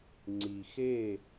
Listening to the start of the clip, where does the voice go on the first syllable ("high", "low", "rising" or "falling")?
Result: low